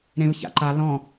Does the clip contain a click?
yes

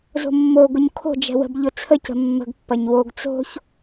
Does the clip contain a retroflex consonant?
no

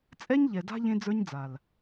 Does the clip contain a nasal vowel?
yes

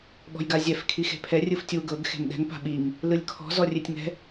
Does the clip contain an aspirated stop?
yes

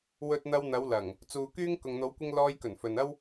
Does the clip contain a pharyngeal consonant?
no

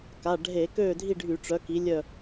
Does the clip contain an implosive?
no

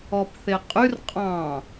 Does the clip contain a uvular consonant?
yes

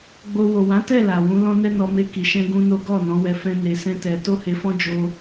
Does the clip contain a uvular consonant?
no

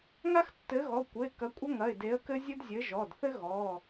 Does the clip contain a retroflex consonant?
no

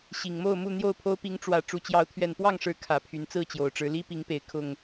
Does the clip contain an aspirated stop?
yes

